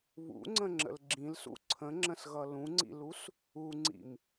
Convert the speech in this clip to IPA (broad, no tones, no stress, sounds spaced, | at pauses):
β ṵ ŋ͡ǀ ə̃ ŋ͡ǁ ə̰ l ɡ͡ǁ ĩ l s ṵ ǀʰ ə̃ ŋ͡ǁ ə̃ s ɣ ʌ l ũ ŋ͡ǀ ḭ l u s | u ŋ͡ǀ ḭ m